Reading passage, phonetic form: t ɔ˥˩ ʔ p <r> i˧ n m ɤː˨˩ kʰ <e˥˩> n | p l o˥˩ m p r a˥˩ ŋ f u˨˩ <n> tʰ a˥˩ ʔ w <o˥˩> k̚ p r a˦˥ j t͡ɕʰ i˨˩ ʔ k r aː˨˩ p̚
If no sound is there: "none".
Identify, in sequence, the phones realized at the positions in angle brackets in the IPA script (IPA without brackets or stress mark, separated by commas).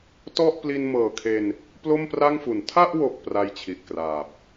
l, e˧, n, o˨˩